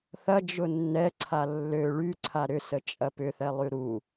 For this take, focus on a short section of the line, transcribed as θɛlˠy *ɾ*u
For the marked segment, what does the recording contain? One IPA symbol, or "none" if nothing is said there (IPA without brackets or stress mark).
ɾ